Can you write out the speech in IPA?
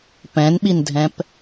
p ɛ̃ n ɓ i n dʱ ɛ̃ p

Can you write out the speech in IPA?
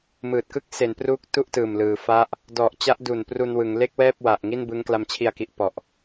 m ɯː˨˩ t̚ k ɯ˦˥ k̚ s e˩˦ n p r uː˦˥ k̚ t u˥˩ ʔ t ɯː˨˩ m l ɯː˩˦ f a˦˥ ʔ | d ɔ˨˩ ʔ t͡ɕ a˦˥ ʔ d u˨˩ n p r u˧ n w ɯ˩˦ ŋ l e˥˩ k̚ w ɛː˥˩ p̚ w a˨˩ ʔ ŋ i˥˩ n b ɯ˦˥ ŋ k l a˧ m t͡ɕʰ i˧ a̯ k i˨˩ ʔ p ɔ˨˩ ʔ

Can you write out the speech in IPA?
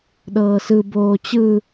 ɗ ɤː s ɯ b oː t͡ɕ ɯ

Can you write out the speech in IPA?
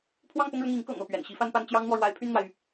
pʰ w ɑ˥˧ ŋ p ʊ˥˧ ŋ ɻ ʊ˥˩ ŋ i˧˥ ŋ k ɤ̰˨˩ ŋ ɤ˥˩ p ɥ ɛ̰˨˩ n ɕ i˥ f a˥ n p a˥ n t͡ɕ j ɑ˥ ŋ n̪ w ɔ˨ ɻ w a˧˥ ɪ̯ pʰ y˥˩ n n̪ w a˩ ɪ̯ y˩

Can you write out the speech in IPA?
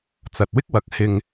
t͡s ɐ˨ t̚ w ɪ˥ k̚ w ɐ˨ k̚ h ɪ˧ ŋ

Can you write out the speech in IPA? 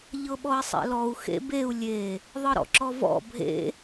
ʎ ɤ ɓ ɔ i̯ sˤ ḛ l ɔ u̯ x ḛ b e u̯ lʲ e | ðˤ ɯ ɾ ɔ̰ ǁ ɔ v ɔ̰ bʱ ḛ

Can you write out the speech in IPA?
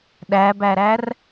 ɗ æ b æ ɾ æ r

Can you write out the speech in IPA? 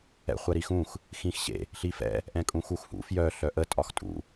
ɛ̰ χʷ ɛ ɾ i x ũ x | x ĩ x ɕ ḛ | ɬ i f ɛ̰ | ʔ ɛ̃ kʼ ũ x u x h ṵ f j œ ɬ œ ʔ ə tʼ ɒ x tʼ ṵ

